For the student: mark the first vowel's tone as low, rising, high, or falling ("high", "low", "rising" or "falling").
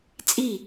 falling